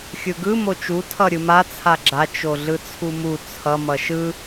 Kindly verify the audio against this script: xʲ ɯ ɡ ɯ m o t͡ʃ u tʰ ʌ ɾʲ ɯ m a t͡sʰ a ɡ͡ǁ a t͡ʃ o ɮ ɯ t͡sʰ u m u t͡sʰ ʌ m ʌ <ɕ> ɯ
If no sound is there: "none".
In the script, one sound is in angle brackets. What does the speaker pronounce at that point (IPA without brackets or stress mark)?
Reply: ʃ